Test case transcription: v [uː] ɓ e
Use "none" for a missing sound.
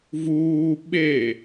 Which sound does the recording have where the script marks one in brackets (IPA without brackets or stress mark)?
uː